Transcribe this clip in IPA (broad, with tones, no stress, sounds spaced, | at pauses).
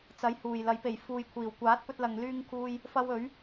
t͡s ɐ˨˥ j h uː˨˩ j l ɐ˨˥ j p e˨˩ j f uː˨ j kʷʰ iː˨˩ w kʷ aː˨˥ t̚ p ɵ˧ t̚ l ɐ˨ ŋ l yː˥ ŋ kʰ uː˥ j | f ɐ˧ w ɵ˨˥ ɥ